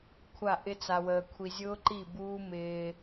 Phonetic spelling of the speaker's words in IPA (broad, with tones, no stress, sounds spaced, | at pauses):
kʷʰ a˦˨ ʔ ɪ˦ t͡s a˧ w əː˧ kʷʰ i˧ zʲ ʊː˦ ǃ i˦˨ b uː˦ m ɪː˧